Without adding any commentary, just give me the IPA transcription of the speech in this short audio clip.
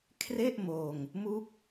kʰre˥˩ʔmoː˧ŋ | mu˥˩k̚

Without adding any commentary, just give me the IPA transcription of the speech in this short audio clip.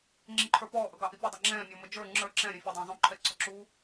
ŋ͡ǁiǃʰə˞pɔː ʔʌɡɑʔipʲə dˤɪŋ͡ǁɛ̃ː mʲɔməd͡ʒə˞ ŋ͡ǁə˞ ǁɛ̃ ɾʲɛ̃fʲɛdˤɛ̃ːzˤũ ǃʰɛǀɔǁu

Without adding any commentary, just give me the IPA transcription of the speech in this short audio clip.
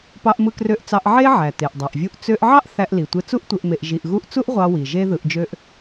pɑ˧ʔmɯ˧ krø˧ʔt͡sɑ˧ʔ ʕe˥ʕæ˩ te˩ʔdˤæ˩ʔvʲu˧ʔ t͡sø˧ʔʕɑ˥ʔ θæ˧ʔli˩tʷe˧ t͡su˥ʔtʷe˧ʔ me˧ʔʒi˧ʔɣu˥ʔ t͡su˥ʔʁʷɑ˧wi˩ ʒe˥ðɯ˧ʔd͡ʒø˥ʔ

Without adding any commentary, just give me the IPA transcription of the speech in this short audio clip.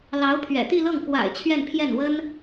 lɑ˧˥ʊ̯pʰɥɛ̰˨˩ t̪i˥˧lɤ˥˩ŋ kwa̰˨˩ɪ̯ t͡ɕʰɥɛ˥˧npʰjɛ˥˩n wə˥n

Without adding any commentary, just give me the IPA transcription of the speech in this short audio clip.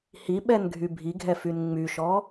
hiɓɛnɡʱy bʱiɡʱɛfyn ŋ͡myʃɔ

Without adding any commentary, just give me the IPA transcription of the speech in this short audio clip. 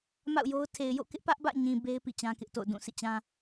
ma̰˦˨ʊ̯jo˦ʊ̯ tʰe˨ɪ̯jo̰˦˨kɪ˦ʔ pä˦ʔbä̰˦˨ɲĩ˨ be˦ɪ̯ pḭ˦˨t͡ɕã˦kɪ˦ʔto̰˦˨ʊ̯ dũ˦˨sḭ˦˨t͡ɕã˦

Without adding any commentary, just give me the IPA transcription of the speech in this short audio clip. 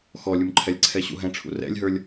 xɔlʲumǃʰɛlʲǀʰɛ ɕṵɦɛ̃ʈ͡ʂʰṵ rɛ̰lʲɦə˞lʲ

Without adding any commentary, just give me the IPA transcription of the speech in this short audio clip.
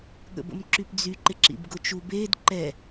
ɠə̰bə̰mǁypd͡zy ǃɪǁḭbɡʊt͡ʃu bed ǃɛ

